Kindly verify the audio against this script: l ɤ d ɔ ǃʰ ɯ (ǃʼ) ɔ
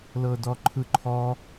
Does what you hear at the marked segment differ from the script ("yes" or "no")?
yes